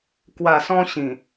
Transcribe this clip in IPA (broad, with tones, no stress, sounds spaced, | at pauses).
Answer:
k w a˨˩ s ɔ̃˧ ɕ ĩ˨˩